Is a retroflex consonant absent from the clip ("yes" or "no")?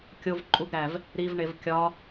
no